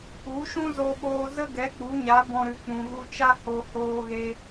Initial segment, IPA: u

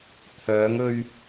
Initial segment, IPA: t̪ʰ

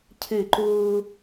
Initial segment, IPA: cʰ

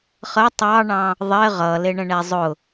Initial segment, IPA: χ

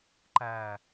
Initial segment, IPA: ǃ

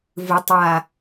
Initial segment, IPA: v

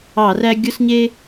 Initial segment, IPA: ɑ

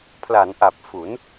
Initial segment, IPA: pʰ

